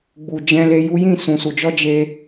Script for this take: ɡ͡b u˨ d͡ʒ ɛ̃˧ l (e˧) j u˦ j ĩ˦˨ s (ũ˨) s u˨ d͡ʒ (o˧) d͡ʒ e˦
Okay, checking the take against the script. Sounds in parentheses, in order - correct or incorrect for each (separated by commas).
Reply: correct, correct, incorrect